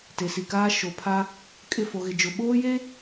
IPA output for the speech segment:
t e˨ s i˨ k aː˦ ʃ o˨ pʰ a˦ | kʼ ɪ˦˨ f o˨ ɣ ɪ˨ d͡ʒ ʊ˨ ɓ oː˦ j e˦

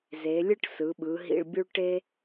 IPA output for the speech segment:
z e˩˧ lʲ ɯ˥˧ ʈ s ɯ˩˧ ɓ ɯ˩˧ ɦ ḭ˧ ɭ bʲ u˥ ɭ ʈ e˥

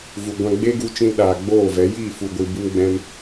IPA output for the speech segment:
v u˨ ɡʷ ã˧ ɡ͡b e˦ ɡ u˧ t͡ʃ ĩ˧ l ɗ aː˨ ɡ͡b oː˦˨ v ɛ˨˦ j iː˦˨ f u˨ ɡʷ ɨ˨ b ɨ˦ m ɡ͡b ɛ̃˦ m

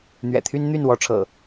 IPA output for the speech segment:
n̪ ɥ ɛ̰˨˩ t̪ʰ y˦ n n̪ y˥˨ n w ɔ˨˦ ʈ͡ʂʰ ɤ̰˨˩

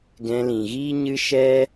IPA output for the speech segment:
ɡ ɛ̃˧ l ĩ˨ ɣ iː˦ ɲ ɨ˦ ʃ ɛ˦

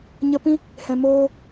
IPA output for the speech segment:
ɲ ə˧ p ĩ˦ | h ɛ̃˨ m oː˧

